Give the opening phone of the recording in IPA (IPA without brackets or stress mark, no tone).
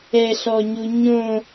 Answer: ɛ